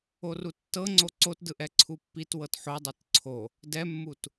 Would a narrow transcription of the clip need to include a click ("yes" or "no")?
yes